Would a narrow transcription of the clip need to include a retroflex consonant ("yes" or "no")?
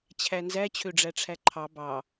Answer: yes